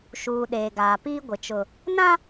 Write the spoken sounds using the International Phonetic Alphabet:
ʃuː˨ ɗeː˨ɡaː˨piː˦ ɡʷɪ˨t͡ʃʊ˨ | nã˦

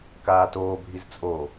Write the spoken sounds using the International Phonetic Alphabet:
kaːtoːbʱiz t͡sʼo

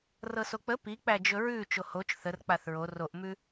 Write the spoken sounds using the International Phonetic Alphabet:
rɤsok͡pə pik͡pæd͡ʒɵ ɹʉ t͡ʃohot͡ʃ θər k͡paθɹo roʔmʉ

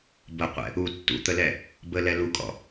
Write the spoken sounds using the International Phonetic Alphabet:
bəqʷɛ̰ | u tːṵt̪əlɛ | bəlɛ lukʼɔ̰

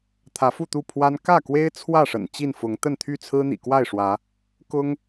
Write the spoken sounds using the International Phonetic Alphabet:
t̪ʰä˨˦fu˥˨t̪u˥˨ pʰwa˦n kä˥˨kwe˦ɪ̯ t͡sʰwä˥˨ʂə̰˨˩n t͡ɕi˥˨nfʊ˨˦ŋ t̪ə˥˨nt̪ʰy˥˨ t͡sʰɹ̩˦n̪ḭ˨˩kwa˥˨ɪ̯ʂwä˨˦ | kʊ˦ŋ

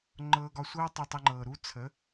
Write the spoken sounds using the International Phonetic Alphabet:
ŋ͡ǃɤː˧ɡɒ˧sʷɤː˦ tˤi˧tˤə˧ŋ͡ǃɤː˨ɾuː˦ t͡sʰə˨˦

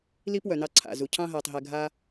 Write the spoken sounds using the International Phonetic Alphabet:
li˦pwœ˩nɑ˨ ǀʰa̰˩zu˩ cʰɑ̃˦ɦɜː˩tˤɦɛ˩ ɡʱa˨

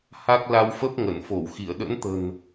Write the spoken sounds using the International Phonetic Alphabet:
ha˦˥k̚ la˧wfə˦˥p̚ ŋə˧˩nfo˧˩wxi˧˩ə̯ ɗə̰˧˥nt̪ə̤˨˩n

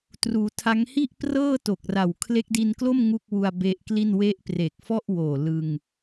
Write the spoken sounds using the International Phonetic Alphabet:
truː˩˦tʰa˦˥ŋ hi˥˩ʔprɤː˥˩ to˨˩k̚ra˨˩w kʰle˦˥k̚di˧nklo˥˩m ŋu˥˩k̚ wu˧a̯be˦˥ʔkli˥˩n we˦˥ʔpre˨˩k̚fɔ˥˩ʔwoː˨˩ lɯ˧ŋ

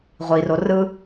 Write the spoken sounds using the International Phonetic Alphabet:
ʁʷiro rɯ

